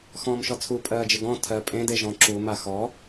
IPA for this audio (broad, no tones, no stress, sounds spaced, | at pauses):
x ɔ̃ː m ʃ ɔ t͡sʰ u pʼ ɜː d͡ʒ ɪ ɡ ɔ̃ tʰ ɜ pʼ ẽ d e ʒ ɔ̃ ǁ u m a x ɔ